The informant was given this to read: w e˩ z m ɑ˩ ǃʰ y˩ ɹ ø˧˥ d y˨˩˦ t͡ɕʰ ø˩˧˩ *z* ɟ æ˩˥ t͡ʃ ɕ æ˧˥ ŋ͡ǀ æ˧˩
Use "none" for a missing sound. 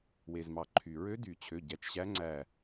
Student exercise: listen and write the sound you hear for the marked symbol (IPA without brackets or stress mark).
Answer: none